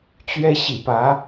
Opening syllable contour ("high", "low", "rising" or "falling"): high